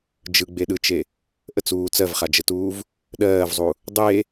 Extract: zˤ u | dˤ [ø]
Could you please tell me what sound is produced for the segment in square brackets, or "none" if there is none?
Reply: e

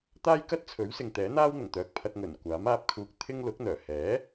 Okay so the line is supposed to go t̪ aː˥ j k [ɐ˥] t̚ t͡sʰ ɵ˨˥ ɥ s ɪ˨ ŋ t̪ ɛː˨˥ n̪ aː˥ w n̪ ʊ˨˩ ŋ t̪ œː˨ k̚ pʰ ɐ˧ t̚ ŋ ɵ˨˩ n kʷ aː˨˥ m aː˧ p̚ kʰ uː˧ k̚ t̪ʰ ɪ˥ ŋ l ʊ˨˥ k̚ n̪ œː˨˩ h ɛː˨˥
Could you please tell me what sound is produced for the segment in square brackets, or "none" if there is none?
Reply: ɐ˥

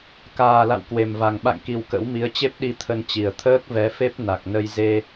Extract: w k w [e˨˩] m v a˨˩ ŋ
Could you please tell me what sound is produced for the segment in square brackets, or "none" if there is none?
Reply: e˨˩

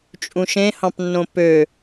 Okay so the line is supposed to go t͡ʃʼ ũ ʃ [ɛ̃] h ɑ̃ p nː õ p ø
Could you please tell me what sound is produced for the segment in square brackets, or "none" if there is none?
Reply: ẽ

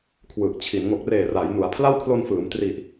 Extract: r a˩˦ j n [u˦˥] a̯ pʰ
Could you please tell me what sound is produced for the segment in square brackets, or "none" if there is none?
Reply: u˩˦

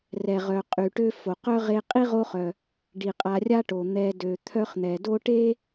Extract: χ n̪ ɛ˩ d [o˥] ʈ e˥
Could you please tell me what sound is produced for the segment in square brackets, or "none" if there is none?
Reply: o˥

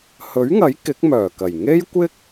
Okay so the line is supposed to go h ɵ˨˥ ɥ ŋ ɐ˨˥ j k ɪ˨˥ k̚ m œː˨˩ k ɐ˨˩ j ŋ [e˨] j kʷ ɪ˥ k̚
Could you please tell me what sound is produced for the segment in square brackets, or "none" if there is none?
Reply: e˥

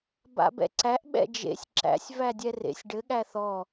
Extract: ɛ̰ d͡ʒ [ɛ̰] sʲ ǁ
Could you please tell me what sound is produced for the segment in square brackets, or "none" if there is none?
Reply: ḛ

